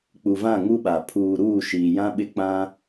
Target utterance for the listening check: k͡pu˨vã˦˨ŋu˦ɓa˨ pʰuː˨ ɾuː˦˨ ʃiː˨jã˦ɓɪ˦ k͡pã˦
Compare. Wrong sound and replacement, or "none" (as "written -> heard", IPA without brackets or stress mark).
none